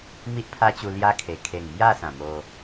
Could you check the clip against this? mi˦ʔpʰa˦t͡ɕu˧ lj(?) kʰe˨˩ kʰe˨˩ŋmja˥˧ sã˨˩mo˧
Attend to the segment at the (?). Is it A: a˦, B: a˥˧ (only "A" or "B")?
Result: A